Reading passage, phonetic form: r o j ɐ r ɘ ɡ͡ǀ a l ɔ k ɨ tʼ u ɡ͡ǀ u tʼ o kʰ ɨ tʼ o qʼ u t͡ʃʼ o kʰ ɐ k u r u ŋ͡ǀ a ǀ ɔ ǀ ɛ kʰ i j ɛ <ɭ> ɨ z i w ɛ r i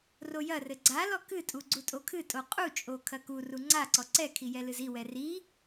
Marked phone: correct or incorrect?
incorrect